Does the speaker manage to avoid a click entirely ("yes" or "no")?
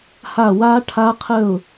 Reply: yes